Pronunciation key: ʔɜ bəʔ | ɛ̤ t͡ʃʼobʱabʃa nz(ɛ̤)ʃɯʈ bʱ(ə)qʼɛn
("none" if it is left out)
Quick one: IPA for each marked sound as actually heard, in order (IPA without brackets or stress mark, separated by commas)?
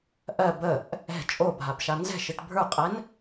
ɛ̤, ə˞